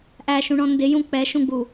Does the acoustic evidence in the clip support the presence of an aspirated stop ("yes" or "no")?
no